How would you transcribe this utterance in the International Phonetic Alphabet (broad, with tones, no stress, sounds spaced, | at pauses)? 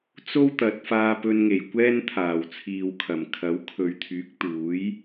t͡s o˥ w t̪ ɐ˨˥ t̚ f aː˧ p ɵ˧ n ŋ e˨˩ j kʷ ɛː˥ n t̪ʰ aː˨˩ w t͡sʰ iː˨ w kʰ ɐ˨˩ m kʰ ɐ˨˥ w kʰ ɵ˨˧ ɥ t̪ʰ yː˨˥ k̚ t̪ uː˨˥ j